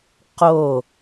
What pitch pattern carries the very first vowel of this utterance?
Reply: falling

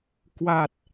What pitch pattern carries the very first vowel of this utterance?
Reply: low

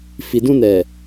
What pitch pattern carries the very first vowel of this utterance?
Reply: low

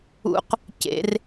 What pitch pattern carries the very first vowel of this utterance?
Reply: rising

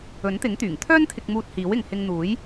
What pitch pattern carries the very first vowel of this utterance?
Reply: rising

